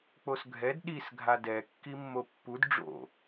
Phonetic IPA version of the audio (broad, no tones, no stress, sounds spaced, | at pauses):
k͡p o s ɡʱ ɛ d ɗ i s ɡʱ a d ɛ kː i mː o pː u d ɖ͡ʐ o̰